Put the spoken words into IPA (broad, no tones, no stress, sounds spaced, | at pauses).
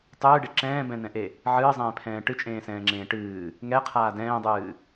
tˤ ɨː ɖ e ǁ ɛ̃ː b ɛ̃ n ɛ̃ ʔ e | ʕ ɨː zˤ ɛ̃ː pʰ ɛ̃ː ʈ ɨ t͡ʃʼ ẽː s ɛ̃ː ŋ͡ǁ ẽː ʈ ɨː | ŋ ɛ qʰ aː d ɛ̃ː dˤ ɨː